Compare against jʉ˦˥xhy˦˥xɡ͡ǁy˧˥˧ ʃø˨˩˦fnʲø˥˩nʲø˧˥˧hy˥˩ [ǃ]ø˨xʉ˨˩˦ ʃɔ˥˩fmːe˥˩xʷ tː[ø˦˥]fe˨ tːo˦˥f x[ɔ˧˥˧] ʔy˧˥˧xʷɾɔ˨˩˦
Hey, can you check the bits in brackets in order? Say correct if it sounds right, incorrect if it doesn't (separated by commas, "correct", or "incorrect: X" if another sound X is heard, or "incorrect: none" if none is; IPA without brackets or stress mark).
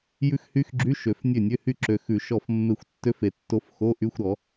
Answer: incorrect: ǁ, correct, incorrect: o˧˥˧